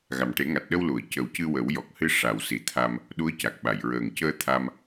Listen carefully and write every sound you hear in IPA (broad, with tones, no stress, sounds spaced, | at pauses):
ɣ a˨˩ m ʈ e˨˩˦ ŋ a˨˩ t̚ ɗ ə˧ w l u˨˩˨ ə̯ c ə˨˩˦ w c ɨ˧ w ə˨˩˦ w j ɔ˨˩ k̚ h ɨ˧ ʂ a˨˩˨ w s i˨˩ t̪ʰ a˧ m | ɗ u˧˥ ə̯ c a˨˩ k̚ ɓ a˨˩˨ j ɹ əː˨˩ ŋ c əː˧ t̪ʰ a˧ m